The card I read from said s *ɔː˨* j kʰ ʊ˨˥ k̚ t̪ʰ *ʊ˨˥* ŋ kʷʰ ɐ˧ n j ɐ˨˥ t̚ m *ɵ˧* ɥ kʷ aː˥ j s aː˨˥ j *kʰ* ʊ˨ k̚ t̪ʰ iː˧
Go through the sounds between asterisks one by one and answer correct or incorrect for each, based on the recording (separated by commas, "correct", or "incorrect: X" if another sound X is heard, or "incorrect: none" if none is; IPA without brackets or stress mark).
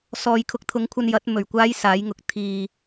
correct, correct, incorrect: ɵ˨˩, incorrect: ŋ